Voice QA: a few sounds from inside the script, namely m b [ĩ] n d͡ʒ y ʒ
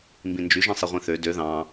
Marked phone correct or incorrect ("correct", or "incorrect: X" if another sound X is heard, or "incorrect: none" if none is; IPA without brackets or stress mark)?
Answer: correct